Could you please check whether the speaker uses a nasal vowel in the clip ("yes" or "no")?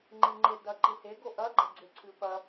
no